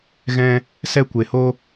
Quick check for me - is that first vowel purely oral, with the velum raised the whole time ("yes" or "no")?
no